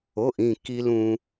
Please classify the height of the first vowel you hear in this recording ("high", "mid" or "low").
mid